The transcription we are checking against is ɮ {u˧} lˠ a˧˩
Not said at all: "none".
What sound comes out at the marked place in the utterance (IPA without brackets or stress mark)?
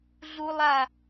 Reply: u˧